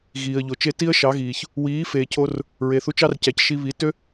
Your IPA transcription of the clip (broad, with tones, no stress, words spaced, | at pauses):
ɣiː˨ə̯ʎo˨t͡ʃe˦ ti˦ə̯ʃɑ˨˦ɣiː˨ç | wiː˨˦feː˨cʰo˧r | ɹe˨θu˧t͡ʃɑ˦r cæ˨cʃi˧ βi˨˦ tø˦